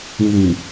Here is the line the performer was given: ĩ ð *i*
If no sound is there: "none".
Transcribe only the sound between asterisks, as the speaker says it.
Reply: ĩ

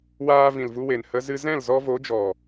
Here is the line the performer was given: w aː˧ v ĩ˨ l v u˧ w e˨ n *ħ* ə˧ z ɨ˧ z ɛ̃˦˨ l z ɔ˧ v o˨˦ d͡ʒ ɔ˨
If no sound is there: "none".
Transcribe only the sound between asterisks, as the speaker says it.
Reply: h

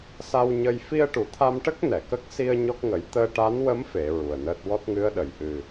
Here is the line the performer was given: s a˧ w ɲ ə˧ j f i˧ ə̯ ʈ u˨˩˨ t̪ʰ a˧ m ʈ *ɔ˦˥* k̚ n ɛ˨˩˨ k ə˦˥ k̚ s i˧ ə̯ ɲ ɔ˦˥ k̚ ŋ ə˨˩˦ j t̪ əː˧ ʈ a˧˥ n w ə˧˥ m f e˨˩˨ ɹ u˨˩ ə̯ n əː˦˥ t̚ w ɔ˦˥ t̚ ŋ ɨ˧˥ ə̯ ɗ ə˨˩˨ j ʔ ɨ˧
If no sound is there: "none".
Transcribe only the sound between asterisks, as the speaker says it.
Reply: ə˦˥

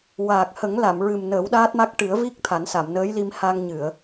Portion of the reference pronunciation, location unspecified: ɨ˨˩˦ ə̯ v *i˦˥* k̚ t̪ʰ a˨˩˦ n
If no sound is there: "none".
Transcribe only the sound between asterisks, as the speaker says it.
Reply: i˦˥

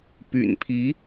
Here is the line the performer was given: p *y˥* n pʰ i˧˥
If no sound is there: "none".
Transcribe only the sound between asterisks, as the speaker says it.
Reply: y̰˨˩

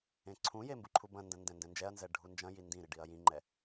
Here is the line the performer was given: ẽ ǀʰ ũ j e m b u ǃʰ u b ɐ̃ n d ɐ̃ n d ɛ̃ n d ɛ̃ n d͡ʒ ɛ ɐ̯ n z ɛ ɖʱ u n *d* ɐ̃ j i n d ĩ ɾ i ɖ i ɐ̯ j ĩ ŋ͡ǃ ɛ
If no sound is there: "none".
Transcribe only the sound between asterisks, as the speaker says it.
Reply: d͡ʒ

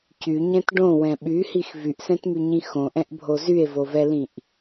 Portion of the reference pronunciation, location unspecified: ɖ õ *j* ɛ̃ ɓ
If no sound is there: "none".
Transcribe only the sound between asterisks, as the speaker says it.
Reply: w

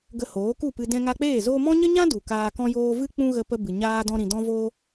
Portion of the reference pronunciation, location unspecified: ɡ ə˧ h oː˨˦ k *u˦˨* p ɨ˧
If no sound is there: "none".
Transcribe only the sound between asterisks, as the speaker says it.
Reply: u˦˨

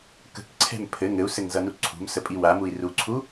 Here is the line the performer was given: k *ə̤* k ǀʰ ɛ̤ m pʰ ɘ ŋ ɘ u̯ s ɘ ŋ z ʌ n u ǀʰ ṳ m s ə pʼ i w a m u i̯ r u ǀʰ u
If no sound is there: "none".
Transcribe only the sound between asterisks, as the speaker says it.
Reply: ə̤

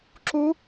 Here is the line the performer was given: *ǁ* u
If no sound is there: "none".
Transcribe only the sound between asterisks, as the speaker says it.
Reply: ǁ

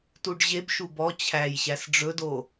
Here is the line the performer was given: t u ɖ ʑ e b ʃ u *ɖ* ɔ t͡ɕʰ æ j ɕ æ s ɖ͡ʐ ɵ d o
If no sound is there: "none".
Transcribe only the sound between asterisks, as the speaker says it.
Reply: b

